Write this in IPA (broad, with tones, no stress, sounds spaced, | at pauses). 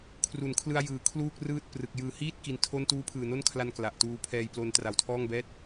kʰ r u˩˦ n kʰ l ɯ˧ a̯ j ɯː˨˩ kʰ l uː˥˩ k̚ r ɯː˥˩ t̚ p r ɯ˨˩ k̚ j ɯː˨˩ h iː˥˩ t̚ k i˧ n tʰ o˥˩ n t uː˦˥ pʰ ɯː˨˩ n o˥˩ n kʰ l a˧ n k l a˨˩ ʔ t uː˧ pʰ ɛː˧ j p l o˧ n t r a˨˩ w tʰ ɔː˥˩ ŋ b ɛː˥˩ t̚